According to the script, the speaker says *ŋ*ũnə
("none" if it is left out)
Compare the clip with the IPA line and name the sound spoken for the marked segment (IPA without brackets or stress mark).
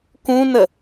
k